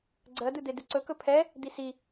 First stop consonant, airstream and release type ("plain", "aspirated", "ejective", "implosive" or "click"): click